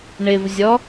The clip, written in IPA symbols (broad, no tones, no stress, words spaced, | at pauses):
ɳɪvzʲɔ